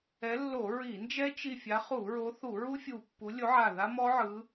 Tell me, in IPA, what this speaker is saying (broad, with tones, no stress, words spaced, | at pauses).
ɛ˨˦lːo˧˩˧ ɹi˧˩˧nd͡ʒɛ˦˥ t͡ʃi˧˩ fʲa˨˦χu˧˩˧ɹo˨˦θu˧˩˧ ɹu˦˥fʲu˧˩pːu˨˦ lʲo˨˦ʕa˧˩ ða˦˥mɔ˦˥ʕɯ˨˦